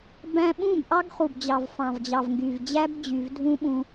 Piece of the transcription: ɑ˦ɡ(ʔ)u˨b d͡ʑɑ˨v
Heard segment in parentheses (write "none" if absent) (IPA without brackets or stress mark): χ